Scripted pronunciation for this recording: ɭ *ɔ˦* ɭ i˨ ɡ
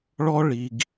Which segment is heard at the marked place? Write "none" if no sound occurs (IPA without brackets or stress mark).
ɔ˦